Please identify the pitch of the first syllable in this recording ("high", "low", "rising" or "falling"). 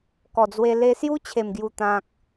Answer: low